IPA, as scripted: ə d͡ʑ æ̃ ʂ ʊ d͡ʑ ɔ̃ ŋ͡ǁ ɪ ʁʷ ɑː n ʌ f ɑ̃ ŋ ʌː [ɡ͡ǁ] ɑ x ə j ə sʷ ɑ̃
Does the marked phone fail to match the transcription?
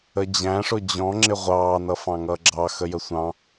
no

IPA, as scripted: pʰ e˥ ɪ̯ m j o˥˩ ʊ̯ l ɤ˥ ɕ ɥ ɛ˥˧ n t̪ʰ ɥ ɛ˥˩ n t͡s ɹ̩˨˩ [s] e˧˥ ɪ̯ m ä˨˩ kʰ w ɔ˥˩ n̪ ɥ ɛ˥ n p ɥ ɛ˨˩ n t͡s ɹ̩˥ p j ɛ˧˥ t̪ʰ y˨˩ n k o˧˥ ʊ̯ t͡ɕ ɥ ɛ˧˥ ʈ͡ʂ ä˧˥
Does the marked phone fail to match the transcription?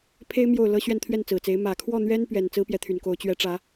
yes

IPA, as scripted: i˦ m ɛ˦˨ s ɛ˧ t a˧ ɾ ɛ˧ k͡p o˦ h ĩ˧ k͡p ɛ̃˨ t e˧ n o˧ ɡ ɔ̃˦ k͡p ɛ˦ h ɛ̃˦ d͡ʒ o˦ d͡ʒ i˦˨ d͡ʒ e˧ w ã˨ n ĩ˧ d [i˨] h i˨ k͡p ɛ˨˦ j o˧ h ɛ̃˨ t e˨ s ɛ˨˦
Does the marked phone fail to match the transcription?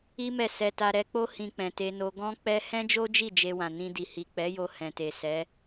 no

